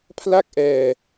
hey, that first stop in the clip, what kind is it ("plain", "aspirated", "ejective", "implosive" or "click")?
aspirated